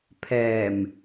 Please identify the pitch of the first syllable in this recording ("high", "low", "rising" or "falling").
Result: low